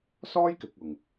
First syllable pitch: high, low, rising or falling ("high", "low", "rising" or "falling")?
high